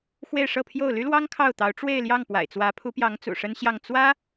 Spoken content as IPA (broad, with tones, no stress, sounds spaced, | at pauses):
x w e˥˧ ɪ̯ ʂ ɤ˥˧ pʰ j o˥˩ ʊ̯ l y˥ l w ɑ˥ ŋ kʰ ɑ˥˩ ʊ̯ t̪ ɑ˧˥ ʊ̯ ʈ͡ʂ w e˥˧ ɪ̯ l j ɑ˥˩ ŋ p w a̰˨˩ ɪ̯ t͡s w ä˧˥ pʰ u˧˥ p j ɑ˧˥ ŋ t͡s ṵ˨˩ ʂ ə˥ n ɕ j ɑ˥˩ ŋ t͡s w ä˥